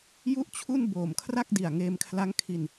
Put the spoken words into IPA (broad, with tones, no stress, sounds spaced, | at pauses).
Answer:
j u˥˩ ʔ t͡ɕʰ u˥˩ n b oː˨˩ m kʰ r a˥˩ k̚ d i˨˩ a̯ ŋ eː˧ m kʰ l a˦˥ ŋ kʰ i˧ n